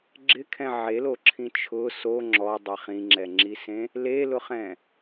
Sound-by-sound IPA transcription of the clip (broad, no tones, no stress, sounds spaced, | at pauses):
ɡ͡ǁ ɪ kʰ ɛ̃ ʕ e l o ǁʰ ĩ t͡ʃʰ ʊ s o ŋ͡ǁ ɔ dˤ ɛ χ ĩ ŋ͡ǁ ɛ ŋ͡ǁ i s ẽ | l e l ʊ χ ɛ̃